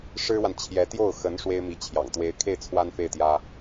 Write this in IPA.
ʂ ɻ̩˥ w a˨ n t͡ɕʰ j ɛ˧˥ t̪ j o˥˩ ʊ̯ x ə˧˥ n ʂ w e˥ ɪ̯ m i˧˥ t͡ɕʰ j ɑ̰˨˩ ŋ t̪ w e˧˥ ɪ̯ kʰ e˥˩ ɪ̯ t͡sʰ w a˥ n f e˥˩ ɪ̯ t̪ j ä˥

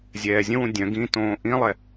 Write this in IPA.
zʲ ɛː zʲ ə̃ w ũ dʲ œ̃ ɡ ĩ t õː ʔ ĩ lˠ ɛ

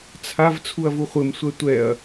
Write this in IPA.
t͡sʰ a v t͡sʰ u ɐ̯ v u χʷ ɘ m sʷ ɛ tʷ ɛ ɐ̯

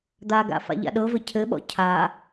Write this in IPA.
d̪ a ɡ a̰ f a̰ ʎ a̰ ɗ ɤ v ɘ cʰ ɘ ɓ ɔ̰ cʰ a

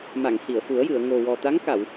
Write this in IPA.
m a˨˩˨ ŋ h i˨˩˨ ə̯ f u˨˩˦ ə̯ j ɨ˨˩˨ ə̯ ŋ o˨˩ w ɔ˨˩ t̪ a˧˥ ŋ k a˨˩˨ w

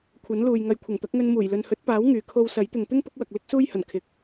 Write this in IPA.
kʷʰ ɐ˨˥ n l uː˨ j ŋ ɐ˨˧ j kʷʰ ɐ˨˩ ŋ t̪ ɐ˨˥ k̚ ŋ ɵ˧ n m uː˨˩ j l ɵ˨ n h ɵ˨˥ t̚ p aː˨˥ w ŋ yː˨ kʰ o˧ w s ɐ˨˥ j t̪ ɪ˨ ŋ t̪ ɪ˥ ŋ p ʊ˨˥ k̚ w ɐ˨ k̚ l ɪ˥ k̚ s uː˥ j h ɐ˨˩ n kʰ ɪ˨ k̚

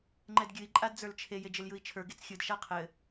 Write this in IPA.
ŋ͡ǃ ɛ d ɡʲ ɨ i̯ ǃʼ a d d͡z ə˞ l t͡ʃʰ e j e d͡ʒ ɘ l j ɯ i̯ t͡ʃʰ ə˞ ɡ e t͡s xʲ ɯ d ʃ a qʰ ɘ

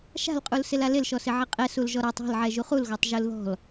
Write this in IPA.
ʃ a̤ l qʼ u l s ɪ l a l ɪ l ʃ ɔ s ɪ ʕ ɪ qʼ ɛ s u l ʒ ɔ ɾ a tˤ ɔ̤ l ʕ ɛ ʒ u χ u l ɣ ɔ tˤ ʒ u l ð ɔ̤ l

